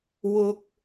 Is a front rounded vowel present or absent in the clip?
absent